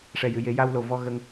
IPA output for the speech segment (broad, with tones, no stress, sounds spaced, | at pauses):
ʂ ɛ˨˩ j ɨ˨˩˨ j e˨˩˦ j a˧ w l o˨˩ v ɔ˧ ɣ ə˧ ŋ